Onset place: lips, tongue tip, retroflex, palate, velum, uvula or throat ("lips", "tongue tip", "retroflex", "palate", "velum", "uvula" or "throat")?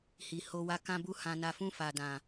throat